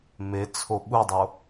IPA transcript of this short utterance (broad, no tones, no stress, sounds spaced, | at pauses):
m e t͡sʰ o ɓ u dˤ o